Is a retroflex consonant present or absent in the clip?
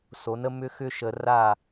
absent